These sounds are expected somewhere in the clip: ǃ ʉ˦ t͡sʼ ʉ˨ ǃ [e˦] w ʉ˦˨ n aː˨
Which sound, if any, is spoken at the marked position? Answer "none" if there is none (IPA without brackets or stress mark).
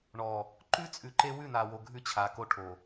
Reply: e˦